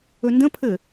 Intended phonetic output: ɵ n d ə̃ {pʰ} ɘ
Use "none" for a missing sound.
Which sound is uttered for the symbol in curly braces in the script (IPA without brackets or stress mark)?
pʰ